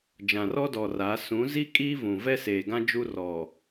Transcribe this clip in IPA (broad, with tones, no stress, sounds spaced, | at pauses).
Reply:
d͡ʒ ã˨ r ɔ˦ d ɔ˨ r a˨˦ s ũ˨˦ z i˦ kʼ i˦ v ũ˨ v ɛ˦ s eː˨ ɡ ã˦ d͡ʒ u˦ r ɔ˨